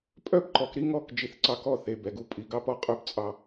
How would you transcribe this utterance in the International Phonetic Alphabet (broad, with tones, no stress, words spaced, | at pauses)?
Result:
pʼœ˦bǃɔ˨k ɾi˦ŋɔ˦˨k d͡ʒi˨θǀɑ˦˨kɔ˦ θe˨ bɛ˨ɡu˦pʼi˨ ɡɑ˦pɔ˦qʼœ˦b t͡sʼɑ˦